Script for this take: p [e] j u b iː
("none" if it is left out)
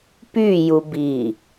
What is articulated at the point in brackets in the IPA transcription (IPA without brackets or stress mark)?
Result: y